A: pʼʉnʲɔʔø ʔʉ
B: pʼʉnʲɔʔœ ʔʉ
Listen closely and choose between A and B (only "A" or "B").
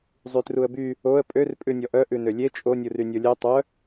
B